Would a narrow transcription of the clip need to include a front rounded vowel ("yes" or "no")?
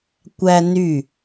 yes